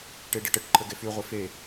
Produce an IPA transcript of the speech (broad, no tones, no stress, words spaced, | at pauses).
ʈeɖeʈəʈ ǃʰəɡefy ʁʷefe